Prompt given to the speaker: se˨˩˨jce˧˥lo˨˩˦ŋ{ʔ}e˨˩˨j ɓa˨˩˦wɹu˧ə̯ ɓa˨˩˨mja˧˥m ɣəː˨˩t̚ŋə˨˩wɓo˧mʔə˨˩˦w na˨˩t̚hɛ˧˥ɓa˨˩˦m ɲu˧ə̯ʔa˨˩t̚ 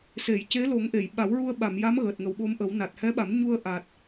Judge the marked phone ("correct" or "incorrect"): correct